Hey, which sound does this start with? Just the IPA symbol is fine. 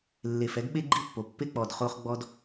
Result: lː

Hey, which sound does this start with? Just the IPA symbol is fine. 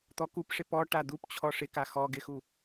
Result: t̪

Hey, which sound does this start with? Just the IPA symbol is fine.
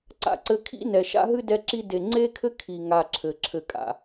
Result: ǀ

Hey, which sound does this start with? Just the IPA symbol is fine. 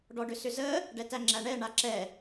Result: ɖ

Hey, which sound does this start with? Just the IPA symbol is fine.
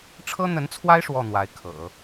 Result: ʈ͡ʂʰ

